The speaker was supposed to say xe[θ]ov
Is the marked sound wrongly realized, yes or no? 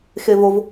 yes